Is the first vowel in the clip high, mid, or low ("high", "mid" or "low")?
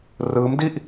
high